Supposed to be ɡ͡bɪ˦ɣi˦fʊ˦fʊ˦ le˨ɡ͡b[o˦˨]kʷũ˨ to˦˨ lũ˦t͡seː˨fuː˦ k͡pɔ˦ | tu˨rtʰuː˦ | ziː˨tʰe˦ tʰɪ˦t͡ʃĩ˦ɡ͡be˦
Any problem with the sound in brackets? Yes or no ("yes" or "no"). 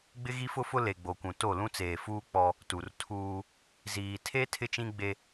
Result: yes